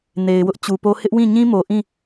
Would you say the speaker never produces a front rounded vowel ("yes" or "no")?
yes